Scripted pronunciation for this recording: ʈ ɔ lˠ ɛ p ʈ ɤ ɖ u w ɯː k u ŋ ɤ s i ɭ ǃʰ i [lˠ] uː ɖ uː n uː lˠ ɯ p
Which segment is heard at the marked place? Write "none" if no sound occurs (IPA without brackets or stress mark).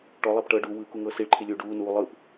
lʲ